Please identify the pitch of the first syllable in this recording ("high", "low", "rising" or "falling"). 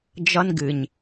high